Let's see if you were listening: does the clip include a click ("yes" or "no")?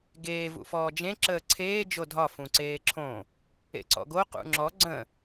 yes